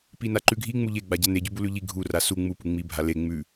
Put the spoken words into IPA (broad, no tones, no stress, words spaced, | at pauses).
pinaǃʉɡʱi ŋ͡muʎe ɡ͡baɟane ɟʉbulʉʎi ɡʱu rasu ŋ͡mu puŋ͡mi bʱale ŋ͡mʉ